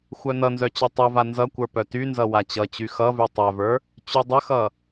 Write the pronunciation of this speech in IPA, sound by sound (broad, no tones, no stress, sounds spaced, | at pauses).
xʷ œ n ʌ n z œ t͡ɕ œ tˤ u v a n z ʌ kʷ ə˞ p œ t y n z ʌ w a t͡ɕ ʌ t͡ɕ y x ʌ v y tˤ œ v ə˞ | t͡ɕ y dˤ ə x ʌ